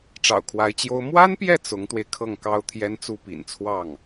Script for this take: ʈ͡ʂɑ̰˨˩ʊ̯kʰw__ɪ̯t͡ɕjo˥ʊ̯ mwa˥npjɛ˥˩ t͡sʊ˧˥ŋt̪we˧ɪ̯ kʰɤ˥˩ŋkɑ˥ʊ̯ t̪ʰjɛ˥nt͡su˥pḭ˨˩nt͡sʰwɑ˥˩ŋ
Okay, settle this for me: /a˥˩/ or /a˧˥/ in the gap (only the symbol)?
a˧˥